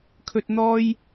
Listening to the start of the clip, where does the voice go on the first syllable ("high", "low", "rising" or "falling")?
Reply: low